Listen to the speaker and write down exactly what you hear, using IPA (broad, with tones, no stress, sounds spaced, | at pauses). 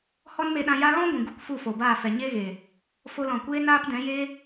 h ɔ˦ n m e˧ ɗ ã˧ j a˦ ɣ ɔ̃˦ ɡʷ ĩ˨ ɡ u˦˨ k f u˦˨ f o˨ b aː˦˨ f ɛ˨ ɲ e˦ ɣ eː˨ | f o˧ l ɔ̃˨ kʷ eː˦ n aː˦ p d ɛ̃˨˦ j eː˦